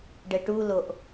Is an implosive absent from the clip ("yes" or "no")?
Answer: yes